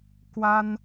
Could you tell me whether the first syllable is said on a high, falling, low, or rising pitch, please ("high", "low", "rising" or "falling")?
high